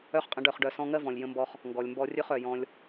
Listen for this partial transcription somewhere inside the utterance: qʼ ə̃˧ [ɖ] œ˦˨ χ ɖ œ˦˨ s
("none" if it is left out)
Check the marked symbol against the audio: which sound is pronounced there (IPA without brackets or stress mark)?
ɖ